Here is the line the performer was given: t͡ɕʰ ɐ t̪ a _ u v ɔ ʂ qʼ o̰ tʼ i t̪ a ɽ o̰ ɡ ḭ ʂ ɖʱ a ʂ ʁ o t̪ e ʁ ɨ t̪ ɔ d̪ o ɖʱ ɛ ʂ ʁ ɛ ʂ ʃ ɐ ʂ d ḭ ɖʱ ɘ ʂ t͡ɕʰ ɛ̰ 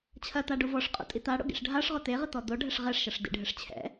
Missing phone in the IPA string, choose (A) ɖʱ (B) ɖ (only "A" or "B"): B